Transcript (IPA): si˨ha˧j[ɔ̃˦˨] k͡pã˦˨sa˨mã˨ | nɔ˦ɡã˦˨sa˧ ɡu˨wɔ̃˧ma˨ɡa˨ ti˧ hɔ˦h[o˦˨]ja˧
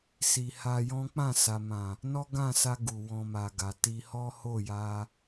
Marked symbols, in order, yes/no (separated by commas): no, yes